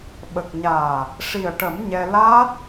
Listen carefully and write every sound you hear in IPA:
ɓ ə˨˩ k̚ ɲ aː˨˩ | ʂ i˨˩ ə̯ ʈ ə˨˩˦ m ɲ ɛ˧ l aː˦˥ t̚

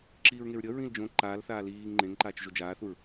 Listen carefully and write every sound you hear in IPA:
ǁ iː ɹ ŋ e ɹ ɾʲ ʌ ɹ ĩ l d͡ʒ õ ǃ aː l θ aː l iː ŋ ŋ͡ǃ ẽ ŋ ǃ aː t͡ʃ ʒ o d͡ʒ aː θ u ɹ

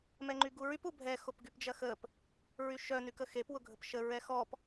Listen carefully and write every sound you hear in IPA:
m ɛ ŋ͡ǃ y ɡ u ɹ y p u bʱ ɛ x o p ɡ y p d͡ʒ ɐ x ə p | ɹ y ʃ œ n y k ə x e p w ʊ ɡʱ ə p ʃ ə ɹ ɛ x ɔ p

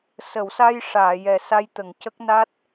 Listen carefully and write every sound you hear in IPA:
s ə˨˩˨ w s a˧ j ʂ aː˨˩˨ j ɛ˨˩ s a˧ j t̪ ə˨˩˨ ŋ c ə˦˥ k̚ n a˦˥ t̚

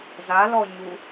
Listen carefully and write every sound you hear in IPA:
z a l ɔ ɲ u

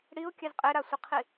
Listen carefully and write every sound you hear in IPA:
ɽ i ʊ̯ kʲ ɛ z qʼ e ɾ a sʷ i qʰ i

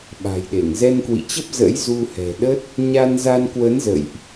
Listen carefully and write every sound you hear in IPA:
ɓ a̤˨˩ j ɗ e˧˩ ŋ z ɛ˧ n k w ḭ˧˨ t͡ɕ ə˦˥ p̚ z ə̰˧˥ j z u˧ h ɛ̤˨˩ ɗ ə˦˥ t̚ | ɲ a˧ n z a˧ n k w ə˨˦ n z ə̰˧˨ j ʔ

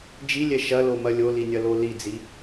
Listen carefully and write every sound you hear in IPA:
d͡ʒ i lʲ ɛ ʃ ɐ l o m ɐ lʲ o l i nʲ ɐ l o l i d͡z i

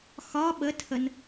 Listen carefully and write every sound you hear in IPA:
x ɒ ɓ ə tʰ ə n

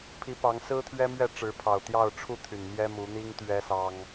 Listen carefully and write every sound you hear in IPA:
pʰ i˨˦ p ɑ˨˦ ŋ s ɹ̩˦ t̪ʰ ɥ ɛ˦ m ɥ ɛ˥˨ ʈ͡ʂ ɻ̩˨˦ pʰ ɑ˨˩ ʊ̯ t̪ j ɑ˥˨ ʊ̯ ʈ͡ʂʰ u˥˨ t̪ʰ y˨˩ n m j ɛ˦ m u˨˦ n̪ i˦ ŋ t̪ ɥ ɛ˦ s ɑ˦ ŋ

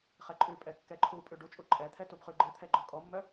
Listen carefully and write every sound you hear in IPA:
χ ɛ ǃʼ ʉ pʼ ɛ kː ɛ ǃʰ u pʼ ʉ ɖ u t͡ʃʼ u ǃʼ ɛ t̪ʰ ɛ t u b χ ʉ ɡ͡ǃ ɨ t̪ʰ ɛ ɡ͡ǃ ɔ kʼ ɔ mː œ

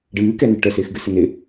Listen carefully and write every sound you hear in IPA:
ɖ ɨː k ɛ n ɨ ʈ œ s ɪː x ɡ ɨ s ɘ n ɪ

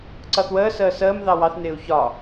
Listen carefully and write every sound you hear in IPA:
ǀ ʌ θ w əː s əː s əː m ð ɑ w ɑ θ n ɪː u̯ ç ɒ

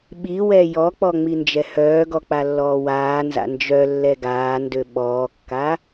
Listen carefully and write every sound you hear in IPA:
ɓ i w ɛ j ɔ k͡p ɔ ŋ͡m i n d͡ʒ ɛ h œː ɡ ɔ k͡p a lː ɔː w aː n z a̰ n d͡ʒ œ lː ɛ ɡ aː n d ø ɓ ɔː kː a

